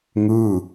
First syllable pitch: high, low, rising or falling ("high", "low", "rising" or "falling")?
falling